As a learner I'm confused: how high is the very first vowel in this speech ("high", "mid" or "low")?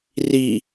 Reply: high